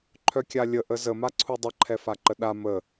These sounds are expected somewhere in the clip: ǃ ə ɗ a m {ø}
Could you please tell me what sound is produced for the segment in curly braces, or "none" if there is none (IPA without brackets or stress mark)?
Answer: ə